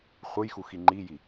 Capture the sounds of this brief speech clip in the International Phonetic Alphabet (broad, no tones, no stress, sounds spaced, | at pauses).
χʷ ɯ j x u x i ŋ͡ǃ i j i